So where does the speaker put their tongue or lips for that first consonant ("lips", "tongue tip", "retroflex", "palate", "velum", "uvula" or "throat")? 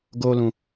velum